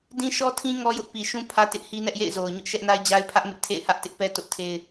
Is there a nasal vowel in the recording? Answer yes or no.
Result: yes